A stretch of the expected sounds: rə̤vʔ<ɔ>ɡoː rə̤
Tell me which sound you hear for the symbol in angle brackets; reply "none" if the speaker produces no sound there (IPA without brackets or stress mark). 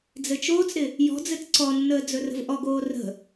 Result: ɔ